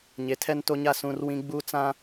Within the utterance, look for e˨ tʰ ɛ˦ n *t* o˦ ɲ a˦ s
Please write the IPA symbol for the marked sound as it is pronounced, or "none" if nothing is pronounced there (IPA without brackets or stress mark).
t